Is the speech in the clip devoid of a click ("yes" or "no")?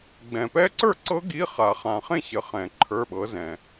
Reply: no